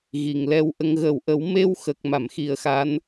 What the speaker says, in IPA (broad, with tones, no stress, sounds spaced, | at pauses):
ɣ i˨˩˨ ŋ l ɛ˧ w ʔ ə˧ ŋ ɣ ə˨˩˨ w ʔ ə˨˩˦ w m e˧ w x ə˨˩ k̚ m a˨˩˨ m x i˨˩ ə̯ x a˧˥ n